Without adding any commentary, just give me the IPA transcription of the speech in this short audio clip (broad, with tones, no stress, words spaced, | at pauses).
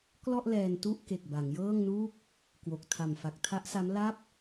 klɔ˥˩ʔ lɛː˧ntu˥˩ʔ ke˨˩k̚ba˩˦ŋjɤː˥˩ŋnuː˥˩k̚ | kwo˨˩k̚ tʰa˨˩mfa˨˩k̚tʰa˦˥ʔsa˦˥m la˥˩p̚